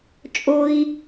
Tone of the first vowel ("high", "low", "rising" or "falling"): low